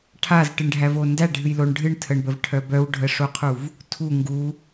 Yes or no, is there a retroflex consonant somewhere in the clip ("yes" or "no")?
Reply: yes